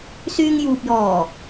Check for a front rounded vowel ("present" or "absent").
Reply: present